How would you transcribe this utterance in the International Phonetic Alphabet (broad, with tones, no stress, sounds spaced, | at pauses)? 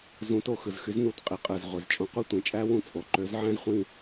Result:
z ũ˨˥ t o˦˨ x ɯ˩˧ z x y˨˥ z n u˨˩ t qʼ i˩˧ qʼ ɯ˨˩ z ʁʷ e˩˧ z t͡ʃʼ õ˨˥ qʷ i˦˨ tʷ ĩ˩˧ t͡ʃʼ æ˥ w ũ˦˨ t͡sʼ o˩˧ ǃ ø˨˥ z ʕ æ̃˥ z χʷ ĩ˦˨